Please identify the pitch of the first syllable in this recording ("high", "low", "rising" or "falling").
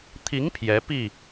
rising